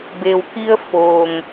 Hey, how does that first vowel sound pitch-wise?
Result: low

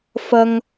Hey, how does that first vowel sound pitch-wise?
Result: high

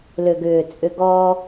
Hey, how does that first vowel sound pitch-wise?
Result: low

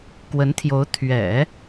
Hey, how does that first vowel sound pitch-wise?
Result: rising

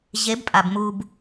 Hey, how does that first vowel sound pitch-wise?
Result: rising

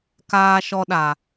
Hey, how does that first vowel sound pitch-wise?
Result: high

